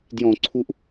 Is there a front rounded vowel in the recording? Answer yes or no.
no